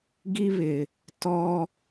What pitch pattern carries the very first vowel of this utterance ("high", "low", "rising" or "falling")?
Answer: high